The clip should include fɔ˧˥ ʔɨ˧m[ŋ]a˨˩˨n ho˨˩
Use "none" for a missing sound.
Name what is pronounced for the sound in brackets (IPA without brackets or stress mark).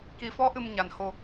ɲ